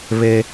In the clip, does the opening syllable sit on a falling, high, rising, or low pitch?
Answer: high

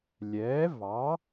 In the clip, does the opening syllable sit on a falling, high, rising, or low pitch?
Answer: rising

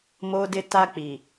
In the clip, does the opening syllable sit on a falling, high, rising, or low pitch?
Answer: high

